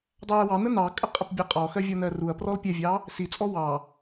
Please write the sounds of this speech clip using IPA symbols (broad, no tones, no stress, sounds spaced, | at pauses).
dˤ æ ɐ̯ w ɑ n ə n ɑ kʼ ə qʼ ə p bʲ ɛ qʼ ɔ x ɜ vʲ ɔ n ɜ r u ɐ̯ p r ɔ l pʲ ɛ vʲ ɑ | s i t͡sʼ ɔ w ɑ